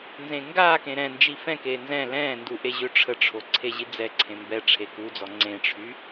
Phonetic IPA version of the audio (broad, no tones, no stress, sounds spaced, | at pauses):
n z ẽ ŋ ɡ aː k ẽ ɾ ɛ̃ n d͡ʒ i f ɛ̃ k eː n z ɛ̃ l ɛ̃ː n d u ʔ e ʑ ø ʈ͡ʂʰ ə ʈ͡ʂʰ o ǀʰ e ʑ i d͡z ɛ ǀʰ ẽ m b ɛ ʈ͡ʂʰ e k u d͡z ɔ ŋ͡ǀ ẽ ʈ͡ʂʰ y